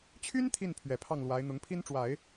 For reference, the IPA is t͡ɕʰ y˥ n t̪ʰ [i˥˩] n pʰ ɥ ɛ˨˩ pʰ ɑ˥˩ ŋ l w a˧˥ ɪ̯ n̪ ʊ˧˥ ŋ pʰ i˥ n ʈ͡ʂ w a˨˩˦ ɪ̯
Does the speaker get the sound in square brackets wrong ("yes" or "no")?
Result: no